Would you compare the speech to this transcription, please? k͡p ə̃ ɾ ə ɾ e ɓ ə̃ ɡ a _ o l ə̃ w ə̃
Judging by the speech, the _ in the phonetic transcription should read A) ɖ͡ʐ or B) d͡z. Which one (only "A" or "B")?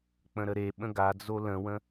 B